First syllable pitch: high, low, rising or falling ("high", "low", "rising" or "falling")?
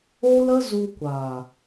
high